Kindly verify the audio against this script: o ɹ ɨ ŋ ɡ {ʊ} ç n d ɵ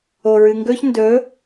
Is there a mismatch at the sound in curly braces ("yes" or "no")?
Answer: yes